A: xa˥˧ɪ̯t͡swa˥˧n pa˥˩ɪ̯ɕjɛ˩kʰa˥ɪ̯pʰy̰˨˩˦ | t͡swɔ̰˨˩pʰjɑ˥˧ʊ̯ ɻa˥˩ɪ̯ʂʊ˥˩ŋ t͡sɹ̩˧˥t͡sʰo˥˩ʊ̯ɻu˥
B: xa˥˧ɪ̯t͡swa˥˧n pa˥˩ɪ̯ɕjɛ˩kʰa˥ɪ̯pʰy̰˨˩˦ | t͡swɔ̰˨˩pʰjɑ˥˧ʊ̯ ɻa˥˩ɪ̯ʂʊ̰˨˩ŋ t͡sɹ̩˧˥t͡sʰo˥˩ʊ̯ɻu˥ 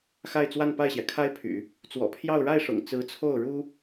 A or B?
B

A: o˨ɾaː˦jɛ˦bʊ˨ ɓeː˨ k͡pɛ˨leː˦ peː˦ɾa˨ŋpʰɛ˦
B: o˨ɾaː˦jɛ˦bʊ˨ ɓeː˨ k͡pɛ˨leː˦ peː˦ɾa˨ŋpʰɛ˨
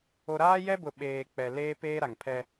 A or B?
A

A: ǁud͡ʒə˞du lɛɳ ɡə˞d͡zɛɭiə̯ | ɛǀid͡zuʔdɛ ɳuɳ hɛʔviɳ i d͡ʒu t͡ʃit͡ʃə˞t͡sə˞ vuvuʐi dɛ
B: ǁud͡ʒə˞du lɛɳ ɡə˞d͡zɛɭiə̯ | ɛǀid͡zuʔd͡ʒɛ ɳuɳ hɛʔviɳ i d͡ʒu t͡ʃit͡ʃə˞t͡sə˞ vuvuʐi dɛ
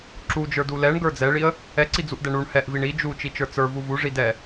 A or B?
A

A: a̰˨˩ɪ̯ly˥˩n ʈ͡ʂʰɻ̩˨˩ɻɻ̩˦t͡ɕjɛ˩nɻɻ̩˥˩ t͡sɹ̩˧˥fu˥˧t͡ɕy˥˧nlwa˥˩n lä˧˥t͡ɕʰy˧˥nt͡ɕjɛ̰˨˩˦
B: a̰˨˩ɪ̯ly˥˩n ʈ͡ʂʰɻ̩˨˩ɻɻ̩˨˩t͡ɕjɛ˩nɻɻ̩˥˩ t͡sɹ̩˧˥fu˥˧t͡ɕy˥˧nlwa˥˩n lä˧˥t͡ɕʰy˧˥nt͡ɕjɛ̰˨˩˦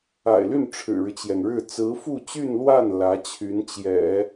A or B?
A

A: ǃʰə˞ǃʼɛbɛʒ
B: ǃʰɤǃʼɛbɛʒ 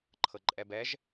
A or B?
B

